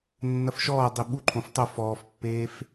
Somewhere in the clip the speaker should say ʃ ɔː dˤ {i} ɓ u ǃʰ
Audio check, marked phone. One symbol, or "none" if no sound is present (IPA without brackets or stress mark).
i